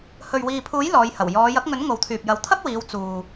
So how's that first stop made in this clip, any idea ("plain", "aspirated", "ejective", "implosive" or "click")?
aspirated